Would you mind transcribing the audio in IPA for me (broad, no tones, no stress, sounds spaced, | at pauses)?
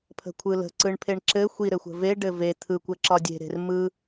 pʰ ə̤ kʷʰ ɯ l ə̤ ǀ ɯ ɳ pʰ e ɳ ǁ ɘ xʷ i ɾ ɘ xʷ ə̤ v e ɖ ɘ v e t̪ʰ ɯ kʷ ɘ ǁ ɒ dʲ e̤ ɾ e̤ r m ɯ